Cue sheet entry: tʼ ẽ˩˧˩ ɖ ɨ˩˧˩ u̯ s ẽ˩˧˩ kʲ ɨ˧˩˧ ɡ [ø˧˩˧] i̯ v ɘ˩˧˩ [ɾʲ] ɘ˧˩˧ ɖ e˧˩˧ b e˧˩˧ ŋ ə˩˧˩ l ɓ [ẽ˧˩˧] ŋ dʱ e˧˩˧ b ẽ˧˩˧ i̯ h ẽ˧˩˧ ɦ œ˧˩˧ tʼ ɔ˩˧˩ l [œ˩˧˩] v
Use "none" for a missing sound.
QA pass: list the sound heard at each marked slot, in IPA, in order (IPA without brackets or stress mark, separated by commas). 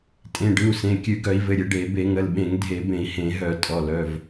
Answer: œ˧˩˧, ɾʲ, ẽ˧˩˧, œ˩˧˩